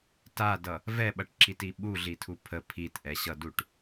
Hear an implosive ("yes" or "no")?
yes